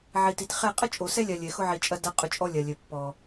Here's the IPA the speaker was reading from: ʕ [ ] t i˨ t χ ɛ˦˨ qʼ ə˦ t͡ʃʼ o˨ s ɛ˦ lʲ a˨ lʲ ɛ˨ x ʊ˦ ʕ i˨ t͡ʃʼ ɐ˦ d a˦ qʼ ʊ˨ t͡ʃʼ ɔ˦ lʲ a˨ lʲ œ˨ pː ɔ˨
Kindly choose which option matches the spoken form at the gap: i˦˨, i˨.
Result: i˨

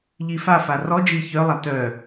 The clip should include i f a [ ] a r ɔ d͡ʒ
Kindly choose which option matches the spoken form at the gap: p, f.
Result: f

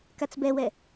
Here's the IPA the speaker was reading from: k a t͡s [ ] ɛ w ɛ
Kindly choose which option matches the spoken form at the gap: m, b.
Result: b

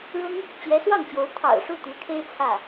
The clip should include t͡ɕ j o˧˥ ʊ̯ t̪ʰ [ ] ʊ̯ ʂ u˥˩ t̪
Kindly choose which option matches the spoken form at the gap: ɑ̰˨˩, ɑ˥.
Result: ɑ̰˨˩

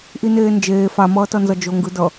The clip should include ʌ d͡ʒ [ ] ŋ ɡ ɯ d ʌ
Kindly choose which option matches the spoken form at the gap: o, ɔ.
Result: o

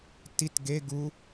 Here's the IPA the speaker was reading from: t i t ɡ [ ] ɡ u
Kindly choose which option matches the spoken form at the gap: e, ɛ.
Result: e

